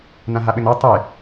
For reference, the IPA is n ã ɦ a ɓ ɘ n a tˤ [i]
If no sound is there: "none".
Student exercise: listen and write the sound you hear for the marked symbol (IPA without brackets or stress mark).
e